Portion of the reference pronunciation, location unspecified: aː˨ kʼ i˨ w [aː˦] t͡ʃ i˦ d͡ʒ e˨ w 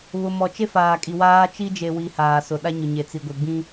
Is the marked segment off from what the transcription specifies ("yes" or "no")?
no